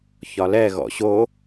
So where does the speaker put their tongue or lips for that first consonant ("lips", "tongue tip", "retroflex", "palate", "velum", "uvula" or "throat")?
palate